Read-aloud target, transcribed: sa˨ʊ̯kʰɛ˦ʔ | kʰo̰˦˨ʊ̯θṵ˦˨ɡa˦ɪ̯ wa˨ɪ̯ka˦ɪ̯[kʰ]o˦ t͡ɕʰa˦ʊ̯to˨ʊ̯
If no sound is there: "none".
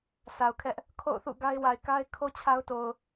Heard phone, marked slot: kʰ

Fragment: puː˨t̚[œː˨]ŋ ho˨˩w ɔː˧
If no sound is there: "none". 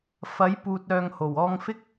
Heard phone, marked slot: œː˨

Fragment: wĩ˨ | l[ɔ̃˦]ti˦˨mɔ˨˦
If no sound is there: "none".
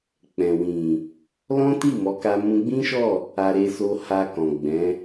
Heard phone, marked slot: ɔ̃˦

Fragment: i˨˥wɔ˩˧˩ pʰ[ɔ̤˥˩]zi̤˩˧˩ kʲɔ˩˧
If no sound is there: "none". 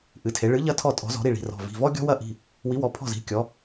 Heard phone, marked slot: ɔ̤˥˩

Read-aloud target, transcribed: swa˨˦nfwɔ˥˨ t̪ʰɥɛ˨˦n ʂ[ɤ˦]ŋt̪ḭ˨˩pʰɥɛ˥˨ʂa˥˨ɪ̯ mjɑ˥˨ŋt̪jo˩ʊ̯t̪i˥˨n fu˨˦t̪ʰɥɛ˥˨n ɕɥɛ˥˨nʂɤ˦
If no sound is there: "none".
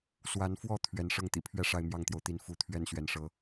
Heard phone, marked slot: ɤ˦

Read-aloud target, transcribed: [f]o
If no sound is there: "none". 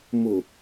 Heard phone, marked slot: m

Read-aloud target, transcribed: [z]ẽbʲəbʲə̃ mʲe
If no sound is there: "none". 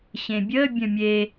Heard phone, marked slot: ɕ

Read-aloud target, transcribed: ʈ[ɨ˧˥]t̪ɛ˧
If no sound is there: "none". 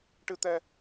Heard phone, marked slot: ɨ˧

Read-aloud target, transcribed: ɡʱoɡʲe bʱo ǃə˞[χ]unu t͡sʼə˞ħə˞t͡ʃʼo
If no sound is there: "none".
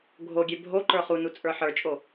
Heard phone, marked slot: χ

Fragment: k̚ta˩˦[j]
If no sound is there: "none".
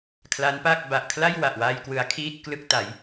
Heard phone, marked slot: j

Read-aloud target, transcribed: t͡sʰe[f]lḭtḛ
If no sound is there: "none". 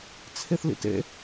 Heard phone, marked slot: θ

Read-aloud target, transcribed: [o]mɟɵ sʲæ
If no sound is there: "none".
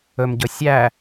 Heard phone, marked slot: ɵ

